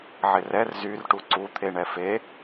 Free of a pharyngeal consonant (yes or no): no